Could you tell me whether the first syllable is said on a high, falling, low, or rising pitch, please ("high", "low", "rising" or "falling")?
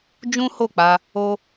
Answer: high